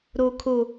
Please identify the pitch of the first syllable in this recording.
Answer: low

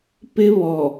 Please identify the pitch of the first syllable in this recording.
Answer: high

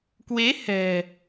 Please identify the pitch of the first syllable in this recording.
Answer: rising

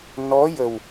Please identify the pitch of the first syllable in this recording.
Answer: rising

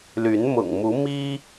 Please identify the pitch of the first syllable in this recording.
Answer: rising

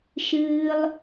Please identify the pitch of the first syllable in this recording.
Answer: high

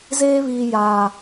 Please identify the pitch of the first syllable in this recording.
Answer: high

